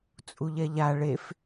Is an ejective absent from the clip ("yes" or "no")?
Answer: no